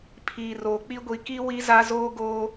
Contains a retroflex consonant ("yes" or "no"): no